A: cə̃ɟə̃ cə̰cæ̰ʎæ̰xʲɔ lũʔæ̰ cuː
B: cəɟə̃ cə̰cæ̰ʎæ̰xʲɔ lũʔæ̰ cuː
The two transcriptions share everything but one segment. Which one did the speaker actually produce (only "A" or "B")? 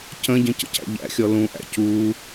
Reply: A